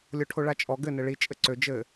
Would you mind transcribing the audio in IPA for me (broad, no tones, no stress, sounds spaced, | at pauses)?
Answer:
lʲ o ʈʰ o ɭ a t͡ʃʼ ɔ ɡ ɘ n ɘ ɭ i t͡ʃʼ ɘ ǀ ø d͡ʒ ɘ